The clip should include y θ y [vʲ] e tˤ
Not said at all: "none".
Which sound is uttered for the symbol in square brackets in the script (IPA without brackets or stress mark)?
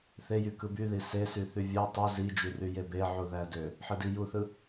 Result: vʲ